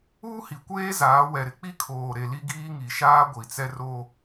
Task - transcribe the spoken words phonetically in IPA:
uː˦ h i˨ kʷ eː˦ z aː˨˦ w ɛ˨ ɾ ɪ˨ k͡p i˦ kʰ oː˨ ɾ e˨ l i˦ ɡ iː˦ ŋ i˨ ʃ aː˦ ɡʷ i˨ t͡s ɛ˦ r o˦

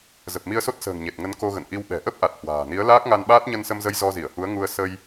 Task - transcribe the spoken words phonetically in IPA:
z ə˨˩ p̚ m i˧ ə̯ s o˦˥ t̚ s ə̤ː˨˩ ŋ ɲ e˨˩ t̚ ŋ ə˨˦ n k o˧ ɣ ə̰˧˨ n ʔ i˧ w ɓ ɛ̤˨˩ ʔ ə˦˥ p̚ ʔ a˨˩ t̚ h w a̤ː˨˩ n i˨˦ ə̯ l aː˦˥ k̚ ŋ a˧ n ɓ aː˦˥ t̚ ɲ ə˧ n s ə˧ m z ə˧ j z ɔ˧ z i˧˩ ə̯ h u˨˦ ə̯ ŋ u˧ ə̯ s ə˧ j

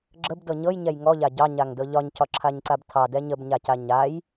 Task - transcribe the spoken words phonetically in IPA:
ɡ͡ǁ ə b d ɤ ɲ ɤ j ɲ ɛ j ŋ ɔ ʎ a ɟ ɑ ɲ a ŋ d ɤ ʎ ɒ ɲ cʰ ɒ ǁʰ a ɲ ǀ a b tʰ ɑ d ɛ ɲ ə b ɲ a c a ɲ a j

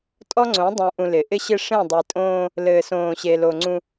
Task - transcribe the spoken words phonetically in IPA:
tʼ ɔ˦ ŋ͡ǀ õ˨˦ dˤ ũ˨ ʔ ũ˨ l ɪ˨ ʔ ɪ˦ ɕ ɪ˦ ʂ ẽ˦˨ dˤ i˨ tʼ õː˦ | l ɘː˨ s õː˨ ɕ e˨ l o˨ ŋ͡ǀ ũ˦

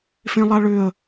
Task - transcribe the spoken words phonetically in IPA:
f ẽ lˠ a ɭ ʏ ə̯

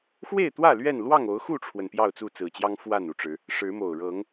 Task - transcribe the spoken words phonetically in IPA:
x w e˥˨ ɪ̯ t̪ w ä˥˨ l ɥ ɛ˥˨ n l w ɑ˥˨ ŋ o˨˦ ʊ̯ x u˥˨ ʈ͡ʂʰ w ə˩ n p j ɑ˥˨ ʊ̯ t͡s u˥˨ t͡s ɹ̩˨˩ t͡ɕ j ɑ˦ ŋ f w a˥˨ n u˨˩ ʈ͡ʂ ɻ̩˨˦ | ʂ ɻ̩˨˦ m o˨˩ ʊ̯ ɻ ɤ˨˦ ŋ

